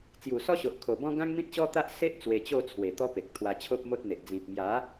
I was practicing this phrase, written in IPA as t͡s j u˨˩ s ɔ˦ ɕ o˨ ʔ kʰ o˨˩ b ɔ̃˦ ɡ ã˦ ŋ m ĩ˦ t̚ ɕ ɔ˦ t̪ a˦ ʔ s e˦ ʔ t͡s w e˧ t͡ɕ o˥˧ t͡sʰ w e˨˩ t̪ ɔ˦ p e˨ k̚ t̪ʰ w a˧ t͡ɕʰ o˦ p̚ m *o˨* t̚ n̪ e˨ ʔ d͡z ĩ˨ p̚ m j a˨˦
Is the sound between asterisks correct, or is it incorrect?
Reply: incorrect